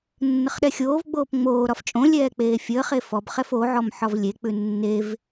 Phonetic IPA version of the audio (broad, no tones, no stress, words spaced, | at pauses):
nːəχɗɛxʲoːvɡ͡boːp ŋ͡moːɾɒf t͡ʃʼõlʲɛː k͡peːfʲəːχe fɔb χɛfoʕɔm ħɒvlʲek͡pʉ nːev